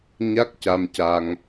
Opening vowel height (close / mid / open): open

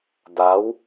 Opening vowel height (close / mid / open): open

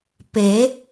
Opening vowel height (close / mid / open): mid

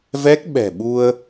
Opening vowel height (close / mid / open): mid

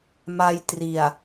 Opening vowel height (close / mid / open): open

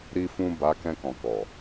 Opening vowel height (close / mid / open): close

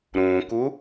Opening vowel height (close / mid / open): close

